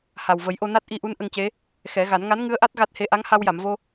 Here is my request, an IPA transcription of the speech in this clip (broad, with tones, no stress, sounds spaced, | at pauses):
h a˨˩ w v ə˨˩˦ j ʔ o˧ n a˦˥ t̚ ʔ i˧ ʔ u˧˥ n ʔ ə˧ ŋ c e˧˥ | x ɛ˨˩˦ ɣ a˨˩˦ n ŋ a˧˥ n ŋ ɨ˧˥ ə̯ ʔ a˦˥ t̚ ɣ a˦˥ t̚ h e˧˥ ʔ a˧˥ ŋ h a˧ w j a˨˩˨ m v o˧